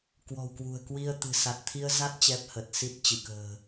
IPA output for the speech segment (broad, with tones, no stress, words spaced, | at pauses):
kwɔ̤˨˩wkwṳ˨˩ə̯ kwi˧ə̯ t̪ɨ̤˨˩sa˨˩t̚t̪ʰi˧ə̯za˦˥t̚ t͡ɕɛ˦˥p̚hə˨˩t̚ si˦˥t̚t͡ɕɨ˧˩kə̤ː˨˩